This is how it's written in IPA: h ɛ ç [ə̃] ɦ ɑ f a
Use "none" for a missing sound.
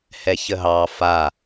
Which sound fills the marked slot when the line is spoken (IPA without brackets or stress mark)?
ə